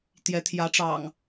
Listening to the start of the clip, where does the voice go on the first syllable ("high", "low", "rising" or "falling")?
rising